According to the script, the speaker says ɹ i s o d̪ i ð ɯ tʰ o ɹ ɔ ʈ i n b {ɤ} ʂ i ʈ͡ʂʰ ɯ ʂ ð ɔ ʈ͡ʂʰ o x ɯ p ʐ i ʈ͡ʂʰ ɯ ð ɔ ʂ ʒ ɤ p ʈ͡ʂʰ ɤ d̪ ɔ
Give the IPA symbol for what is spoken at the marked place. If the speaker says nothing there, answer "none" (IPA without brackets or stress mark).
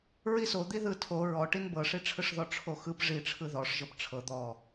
ɤ